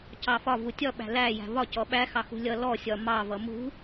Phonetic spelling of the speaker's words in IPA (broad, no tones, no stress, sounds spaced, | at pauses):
c ɑ f ɒ v u tʲ ɒ ɓ æ̤ l æ j æ̤ v ɒ c ɔ ɓ æ x ɑ x ṳ lʲ ʌ l ɔ sʲ ɒ m ɑ v ʌ m ṳ